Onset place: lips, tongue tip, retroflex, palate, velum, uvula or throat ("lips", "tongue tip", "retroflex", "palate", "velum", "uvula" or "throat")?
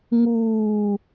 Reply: velum